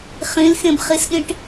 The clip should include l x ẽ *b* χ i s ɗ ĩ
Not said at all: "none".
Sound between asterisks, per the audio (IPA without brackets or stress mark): b